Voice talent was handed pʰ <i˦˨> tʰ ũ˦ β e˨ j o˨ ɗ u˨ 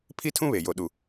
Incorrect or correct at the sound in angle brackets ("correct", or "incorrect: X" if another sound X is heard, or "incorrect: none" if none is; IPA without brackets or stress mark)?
incorrect: i˦